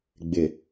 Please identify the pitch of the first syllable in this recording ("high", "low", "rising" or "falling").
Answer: low